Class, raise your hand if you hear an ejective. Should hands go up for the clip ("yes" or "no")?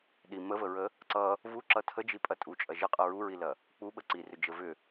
yes